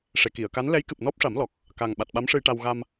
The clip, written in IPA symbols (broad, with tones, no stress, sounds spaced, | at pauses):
ʂ e˨˩ k i˨˩˨ ə̯ k a˧˥ n l ɛ˧˥ j k ɨ˨˩ p̚ n ɔ˦˥ p̚ ʂ a˨˩˦ m l ɔ˨˩ k̚ | k a˨˩ ŋ ɓ a˨˩ t̚ ɓ a˧˥ m ʂ ɨ˧ j ʈ a˧ w ɣ a˧ m